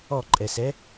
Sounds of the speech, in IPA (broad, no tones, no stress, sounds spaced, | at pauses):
ɔ ǃʼ ɛ s ɛ